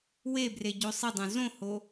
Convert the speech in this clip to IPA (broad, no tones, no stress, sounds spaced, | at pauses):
w e b r e ɟ o sˤ ɪ dˤ õ z õ h o